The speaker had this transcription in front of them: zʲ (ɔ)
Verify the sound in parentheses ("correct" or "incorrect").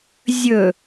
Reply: incorrect